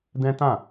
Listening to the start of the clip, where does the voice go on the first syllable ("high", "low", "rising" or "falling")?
high